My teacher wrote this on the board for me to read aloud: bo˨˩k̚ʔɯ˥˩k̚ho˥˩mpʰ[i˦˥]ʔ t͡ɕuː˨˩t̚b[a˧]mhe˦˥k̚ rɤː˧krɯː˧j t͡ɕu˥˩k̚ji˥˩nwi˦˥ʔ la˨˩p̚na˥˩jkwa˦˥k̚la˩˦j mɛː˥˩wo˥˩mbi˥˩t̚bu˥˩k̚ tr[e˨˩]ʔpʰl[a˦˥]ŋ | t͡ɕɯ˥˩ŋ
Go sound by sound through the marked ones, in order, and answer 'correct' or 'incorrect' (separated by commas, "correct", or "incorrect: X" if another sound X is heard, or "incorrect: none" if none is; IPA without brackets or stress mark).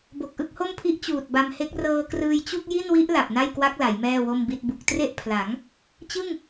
correct, correct, incorrect: e˥˩, incorrect: a˩˦